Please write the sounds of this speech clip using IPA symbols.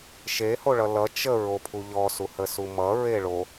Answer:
ʃ e h o ɭ ʌ l ʌ t͡ʃ ə ɹ o pʰ u ʎ ɔ s u h ə s u m ʌ ɹ e ɭ o

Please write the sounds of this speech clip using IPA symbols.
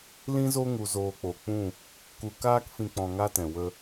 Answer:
l ĩ˦ z o˦ ŋ u˧ z oː˧ k͡p o˨ k͡p ũ˦˨ | k u˧ k aː˦ k f ĩ˧ k͡p ɔ̃˧ ŋ a˦ t ɛ̃˨ w ə˧

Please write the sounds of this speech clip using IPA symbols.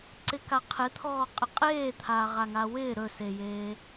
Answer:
ǀ ɪ k a qʰ e t̪ʰ ɔː qʼ ɪ qʼ eː t̪ʰ aː ʁ a ŋ a w ɪː ɾ ɵ s e j eː

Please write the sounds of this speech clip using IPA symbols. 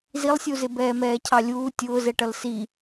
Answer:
z i lˠ sʲ u z ɪ b ɛː m ɛː cʰ ɑ lʲ uː tʲ ʊː z ɛ ʈ ʌ l s i

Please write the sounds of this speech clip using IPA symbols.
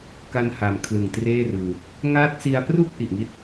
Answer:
k a˧ n h a˩˦ m kʰ l ɯ˨˩ ŋ t r eː˥˩ r ɯː˧ | ŋ aː˦˥ t̚ s i˧ a̯ p r u˥˩ k̚ ʔ i˨˩ ʔ ŋ i˦˥ t̚

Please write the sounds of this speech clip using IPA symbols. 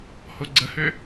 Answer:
h o ɡ͡ǀ ə h ø

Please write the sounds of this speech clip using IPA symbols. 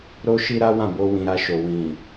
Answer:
ɾ o˦ ʃ i˦ ɾ a˦ w ã˦˨ b o˧ w ĩ˨ ɾ a˧ ʃ o˨ w ĩ˨

